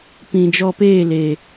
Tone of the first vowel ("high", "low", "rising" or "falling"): low